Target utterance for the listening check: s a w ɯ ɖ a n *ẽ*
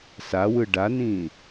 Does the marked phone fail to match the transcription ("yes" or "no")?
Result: yes